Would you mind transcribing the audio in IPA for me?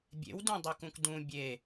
bʲ ḛ w d ũ dˤ e k ũ k d ũ bʲ e

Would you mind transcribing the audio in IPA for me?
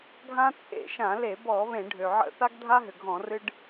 ɡʱ ã˦ t͡sʼ ḛ˧˩˧ ʃ ã˧˩˧ l e˧˩˧ b ɔ˧˩˧ β ẽ˧˩˧ ɖʱ ø˩ ʕ ə̰˦˨ θ a˦ ɡ dʱ a˦ ɦ ʏ˩ ɡʱ ɔ̃˧˩˧ r ɨ˦ ɖ

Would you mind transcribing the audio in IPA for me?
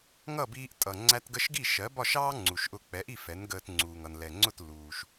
ŋ ʌ˥˩ b iː˧ ʔ tʼ ʌ˩ ŋ͡ǀ æ˧ t ɡ ə˧ ʃ ɡ i˥˩ ʃ ɜ˩˥ b ɒ˥˩ ʃ ɑː˥ ŋ͡ǀ u˩ ʃ ʔ ʊ˧ k͡p ɛ˩˥ ʔ i˥˩ f ɛ˩˥ n ɡ əː˧ t ŋ͡ǀ uː˩ ŋ ʌ˩ n l ɛ˩ ŋ͡ǀ ʊ˥˩ t l uː˩ ʃ

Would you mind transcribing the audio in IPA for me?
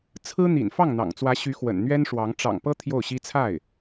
t͡sʰ ɹ̩˥ n̪ ḭ˨˩ n f ɑ˥˩ ŋ n̪ ɑ̰˨˩ ŋ t͡s w ä˧˥ ɕ y˧˥ x w ə̰˨˩ n n̪ ɥ ɛ˥ n ʂ w ɑ˧˥ ŋ ʈ͡ʂ ɑ̰˨˩ ŋ p ɤ˥ t̪ʰ j o˥˩ ʊ̯ ɕ i˥ t͡sʰ a˥˩ ɪ̯

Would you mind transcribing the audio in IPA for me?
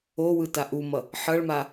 o w ɯ t a ʔ u m ʌ | ħ ʌ ɭ m a

